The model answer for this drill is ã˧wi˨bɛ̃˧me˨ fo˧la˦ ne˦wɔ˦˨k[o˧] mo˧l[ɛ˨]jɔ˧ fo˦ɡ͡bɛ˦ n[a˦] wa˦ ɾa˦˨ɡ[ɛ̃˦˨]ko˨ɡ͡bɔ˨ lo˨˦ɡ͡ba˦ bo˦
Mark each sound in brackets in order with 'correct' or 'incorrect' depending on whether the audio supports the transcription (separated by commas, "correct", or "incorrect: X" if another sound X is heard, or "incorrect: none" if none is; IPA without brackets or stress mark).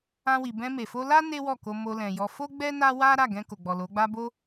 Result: correct, incorrect: ɛ̃˨, correct, incorrect: ɛ̃˧